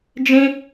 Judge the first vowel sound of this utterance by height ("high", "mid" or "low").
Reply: high